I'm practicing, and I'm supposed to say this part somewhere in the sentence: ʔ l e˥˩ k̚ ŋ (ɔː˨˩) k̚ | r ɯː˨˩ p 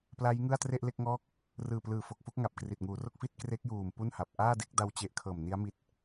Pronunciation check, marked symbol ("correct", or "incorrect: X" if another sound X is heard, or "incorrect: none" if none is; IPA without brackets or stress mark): incorrect: ɔː˥˩